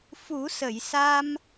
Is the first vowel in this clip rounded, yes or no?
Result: yes